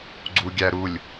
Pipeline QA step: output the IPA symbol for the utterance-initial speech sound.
ɡ͡ǀ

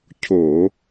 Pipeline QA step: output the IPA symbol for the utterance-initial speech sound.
cʰ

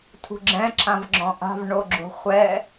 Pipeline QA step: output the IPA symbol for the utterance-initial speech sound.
tʰ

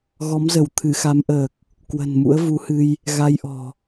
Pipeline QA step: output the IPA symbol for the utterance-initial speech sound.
ɣ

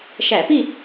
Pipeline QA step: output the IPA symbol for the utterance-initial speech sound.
ʃ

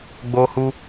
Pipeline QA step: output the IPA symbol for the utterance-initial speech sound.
ɡ͡b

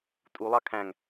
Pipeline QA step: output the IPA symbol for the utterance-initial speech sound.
tʼ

